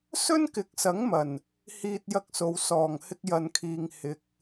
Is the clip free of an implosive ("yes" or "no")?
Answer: yes